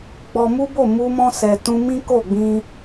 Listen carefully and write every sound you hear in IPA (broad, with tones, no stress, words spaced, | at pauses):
ɡ͡bɔ˧mu˦bo˦˨ mu˧mɔ̃˧ sɛ˨tũ˧mĩ˦ ko˦˨ɡ͡bĩ˧